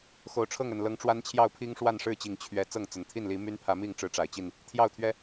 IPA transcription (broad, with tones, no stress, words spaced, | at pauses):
xo˨˩ʊ̯ʈ͡ʂʰɤ˥˨ŋ ə˨˩nlɤ˨˦ŋʈ͡ʂwa˦nt͡ɕʰjɑ˥˨ʊ̯ pʰi˦ŋʂwa˥˨nʂɻ̩˥˨t͡ɕi˨˩ŋ t͡ɕʰɥɛ˨˦ t͡sɤ˥˨ŋt͡sə˨˩n t̪ʰi˥˨nli˨˦my˦npʰä˨˦ mi˥˨ŋ ʈ͡ʂɻ̩˦ʈ͡ʂa˨˩ɪ̯t͡ɕi˥˨n | t̪ʰjɑ˥˨ʊ̯t̪ʰɥɛ˦